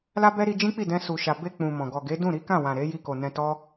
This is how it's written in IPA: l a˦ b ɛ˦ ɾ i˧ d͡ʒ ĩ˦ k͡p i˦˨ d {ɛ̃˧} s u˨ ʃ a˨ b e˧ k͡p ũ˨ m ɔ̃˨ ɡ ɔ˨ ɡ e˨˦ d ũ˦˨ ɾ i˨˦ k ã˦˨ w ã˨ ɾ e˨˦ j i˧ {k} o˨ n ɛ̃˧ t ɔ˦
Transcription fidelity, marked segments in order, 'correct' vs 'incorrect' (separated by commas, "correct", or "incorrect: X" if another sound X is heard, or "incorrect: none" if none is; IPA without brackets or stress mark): correct, correct